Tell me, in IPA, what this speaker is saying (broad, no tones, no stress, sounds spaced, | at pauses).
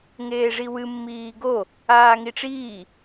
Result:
ŋ eː ʐ i w ɨ mː iː ɡ o | aː ŋ i ʈ͡ʂ iː